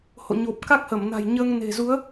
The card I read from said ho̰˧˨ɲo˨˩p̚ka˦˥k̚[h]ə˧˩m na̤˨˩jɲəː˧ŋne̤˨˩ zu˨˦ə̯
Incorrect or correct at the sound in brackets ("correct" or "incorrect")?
correct